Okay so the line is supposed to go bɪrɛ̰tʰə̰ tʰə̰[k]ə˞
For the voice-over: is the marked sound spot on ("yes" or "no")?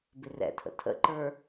no